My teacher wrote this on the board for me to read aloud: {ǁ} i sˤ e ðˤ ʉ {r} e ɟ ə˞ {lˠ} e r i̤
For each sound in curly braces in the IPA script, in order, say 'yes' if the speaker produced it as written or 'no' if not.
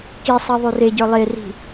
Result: no, yes, yes

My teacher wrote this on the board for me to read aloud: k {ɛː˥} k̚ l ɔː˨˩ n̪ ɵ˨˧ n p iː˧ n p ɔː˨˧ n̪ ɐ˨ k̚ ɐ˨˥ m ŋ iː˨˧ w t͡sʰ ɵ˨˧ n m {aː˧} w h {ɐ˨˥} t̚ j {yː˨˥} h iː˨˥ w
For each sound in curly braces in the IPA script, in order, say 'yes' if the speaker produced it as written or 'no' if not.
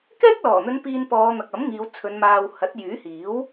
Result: yes, yes, yes, yes

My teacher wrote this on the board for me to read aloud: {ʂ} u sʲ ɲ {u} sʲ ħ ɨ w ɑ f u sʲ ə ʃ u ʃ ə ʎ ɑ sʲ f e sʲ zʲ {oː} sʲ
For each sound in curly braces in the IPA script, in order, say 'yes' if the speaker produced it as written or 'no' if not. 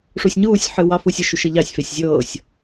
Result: yes, no, no

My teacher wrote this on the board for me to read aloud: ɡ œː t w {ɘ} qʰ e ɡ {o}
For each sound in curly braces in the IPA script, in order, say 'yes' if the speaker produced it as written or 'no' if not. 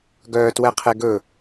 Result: no, no

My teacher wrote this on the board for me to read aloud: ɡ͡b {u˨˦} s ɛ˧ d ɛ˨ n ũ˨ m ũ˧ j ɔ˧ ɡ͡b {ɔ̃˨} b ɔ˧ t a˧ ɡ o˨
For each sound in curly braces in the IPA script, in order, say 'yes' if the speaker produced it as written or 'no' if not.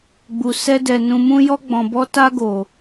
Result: no, yes

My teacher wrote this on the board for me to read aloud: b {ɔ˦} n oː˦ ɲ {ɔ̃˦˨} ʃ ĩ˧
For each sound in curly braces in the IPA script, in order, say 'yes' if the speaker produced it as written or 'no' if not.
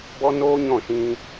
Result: yes, yes

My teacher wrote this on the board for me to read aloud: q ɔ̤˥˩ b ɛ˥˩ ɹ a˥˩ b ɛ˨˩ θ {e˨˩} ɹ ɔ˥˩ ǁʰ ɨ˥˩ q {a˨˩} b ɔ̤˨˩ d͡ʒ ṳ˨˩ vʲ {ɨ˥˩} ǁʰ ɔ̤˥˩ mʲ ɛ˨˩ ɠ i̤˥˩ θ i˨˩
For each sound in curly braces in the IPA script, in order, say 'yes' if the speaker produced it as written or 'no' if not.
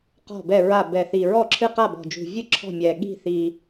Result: no, no, yes

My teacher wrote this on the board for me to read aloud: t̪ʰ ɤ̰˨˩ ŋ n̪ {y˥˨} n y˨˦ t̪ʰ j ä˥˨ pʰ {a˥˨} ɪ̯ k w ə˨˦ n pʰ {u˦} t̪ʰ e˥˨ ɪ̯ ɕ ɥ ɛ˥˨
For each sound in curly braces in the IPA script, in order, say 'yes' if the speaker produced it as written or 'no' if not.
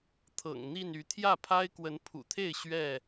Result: no, no, no

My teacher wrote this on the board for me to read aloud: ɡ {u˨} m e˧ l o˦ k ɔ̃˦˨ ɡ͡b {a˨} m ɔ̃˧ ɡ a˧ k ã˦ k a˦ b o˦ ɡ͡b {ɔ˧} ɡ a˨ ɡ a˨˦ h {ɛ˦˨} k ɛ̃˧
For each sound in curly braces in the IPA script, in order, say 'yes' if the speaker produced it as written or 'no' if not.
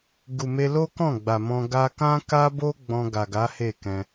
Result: yes, yes, no, no

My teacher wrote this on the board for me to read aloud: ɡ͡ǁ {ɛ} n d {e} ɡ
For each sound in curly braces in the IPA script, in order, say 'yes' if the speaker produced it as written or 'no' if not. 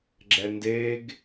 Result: yes, yes

